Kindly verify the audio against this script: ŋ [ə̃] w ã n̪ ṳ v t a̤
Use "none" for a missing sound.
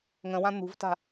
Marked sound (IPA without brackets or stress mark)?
ə̃